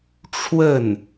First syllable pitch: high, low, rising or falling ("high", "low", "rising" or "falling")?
falling